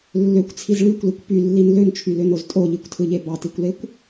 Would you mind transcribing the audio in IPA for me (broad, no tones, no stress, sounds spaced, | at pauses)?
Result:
lː ø kʷ t͡sʰ i z ɭ y kʷ l i kʷ p y lː i n l ø n t͡ʃʰ y l ø n o z tʼ o ʎ i kʷ tʰ ɯ ʎ e b ɑ t i kʷ l e kʷ